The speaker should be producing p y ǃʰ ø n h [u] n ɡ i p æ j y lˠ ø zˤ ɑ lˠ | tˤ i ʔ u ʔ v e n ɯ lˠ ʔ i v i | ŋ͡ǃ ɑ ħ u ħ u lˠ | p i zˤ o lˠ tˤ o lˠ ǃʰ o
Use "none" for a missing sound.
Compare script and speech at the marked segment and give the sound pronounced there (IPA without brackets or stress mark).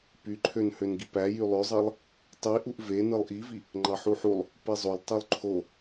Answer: ø